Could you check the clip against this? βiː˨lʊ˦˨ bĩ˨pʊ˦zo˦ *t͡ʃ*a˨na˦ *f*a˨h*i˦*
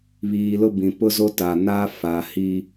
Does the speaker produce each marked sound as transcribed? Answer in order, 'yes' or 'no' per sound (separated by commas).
no, yes, yes